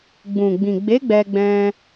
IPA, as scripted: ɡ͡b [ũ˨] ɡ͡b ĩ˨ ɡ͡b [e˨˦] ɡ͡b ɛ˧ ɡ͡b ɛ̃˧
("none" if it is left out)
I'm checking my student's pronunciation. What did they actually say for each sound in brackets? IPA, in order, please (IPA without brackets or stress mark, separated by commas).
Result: ũ˨, e˨˦